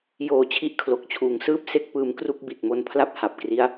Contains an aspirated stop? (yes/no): yes